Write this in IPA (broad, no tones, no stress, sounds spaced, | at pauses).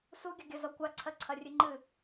s u ɡʲ ɐ ɡʲ ɐ z ɒ kʷ a ǀʰ ɜ ǀʰ ɐ rʲ ɨ ŋ͡ǃ ɨ